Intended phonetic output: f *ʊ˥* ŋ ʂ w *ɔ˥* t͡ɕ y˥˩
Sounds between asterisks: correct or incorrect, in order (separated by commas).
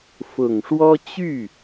incorrect, correct